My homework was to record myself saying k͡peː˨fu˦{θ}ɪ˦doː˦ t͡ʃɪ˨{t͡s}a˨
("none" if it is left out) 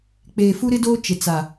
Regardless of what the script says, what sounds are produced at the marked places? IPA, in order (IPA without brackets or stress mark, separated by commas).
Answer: ɾ, t͡s